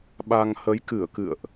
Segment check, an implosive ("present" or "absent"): present